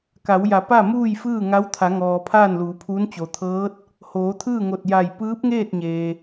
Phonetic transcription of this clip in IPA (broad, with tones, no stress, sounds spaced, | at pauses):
k a˩˧ w j a˩˧ p a˥˨ m uː˥˨ j f ɯː˥˨ ŋ a˧˥ w t̪ʰ a˩˧ ŋ ɔː˩ pʰ aː˥˨ n l uː˩˧ pʰ uː˧˥ n t͡ɕ o˩ t̪ʰ ɤː˧˥ t̚ | h oː˩˧ t̪ʰ ɯː˥˨ ŋ o˧˩ t̚ j a˧˩ j p ɯː˧˥ p̚ ŋ eː˥˨ t̚ ɲ eː˩